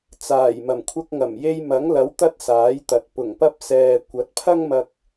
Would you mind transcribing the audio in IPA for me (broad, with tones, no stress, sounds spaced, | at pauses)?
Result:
t͡s aː˨˩ j m ɐ˨˩ m kʷʰ ɐ˧ k̚ ŋ ɐ˨˩ m j e˧ j m ɐ˨˥ ŋ l ɐ˨˥ w t̪ ɐ˥ t̚ s aː˨˥ j t̪ ɐ˨ t̚ p ʊ˨˩ ŋ p ɐ˧ p̚ s ɛː˨ kʷ ɐ˨˥ t̚ pʰ ɐ˥ ŋ m ɐ˧ k̚